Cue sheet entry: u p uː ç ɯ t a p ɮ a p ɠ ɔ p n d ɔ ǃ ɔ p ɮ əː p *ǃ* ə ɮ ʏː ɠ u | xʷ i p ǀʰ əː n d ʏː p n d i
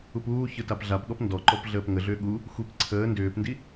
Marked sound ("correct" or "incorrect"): incorrect